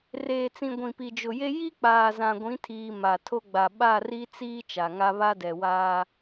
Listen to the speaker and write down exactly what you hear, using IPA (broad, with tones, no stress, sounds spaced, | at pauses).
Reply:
r eː˨ t͡s ĩ˨ ɡʷ ĩ˨ p i˨ d͡ʒ ʊ˨ j e˦ j i˦ k͡p aː˨ z ã˨ ɡʷ ĩ˨˦ tʰ iː˨ m a˨ tʰ o˦ ɡ͡b a˨ ɓ a˦˨ r i˦ t͡s iː˦ t͡ʃ a˨ ŋ a˦ β a˦ d ɛ˨ w aː˦